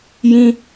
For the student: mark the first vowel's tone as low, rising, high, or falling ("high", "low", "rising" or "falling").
high